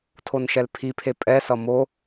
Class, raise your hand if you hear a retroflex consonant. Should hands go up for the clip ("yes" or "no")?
no